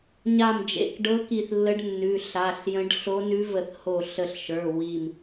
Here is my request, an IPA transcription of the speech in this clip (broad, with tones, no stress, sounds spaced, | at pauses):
ɲ a˧˩ m d͡ʒ ḛ˩˧˩ k ɖ ɤ˧˥ k i˧˩ θ lː ə˧˥ ɖ nː ʉ˩˧˩ ɬ a˩˧˩ ɬ j ə̃˧˥ ɖ ɬ o˧˥ n ʉ˧˥ v ə˧˩ θ h o˧˩ ɬ ə˧˩ ɬ ʃ ə˞˩˧˩ w i˧˩ m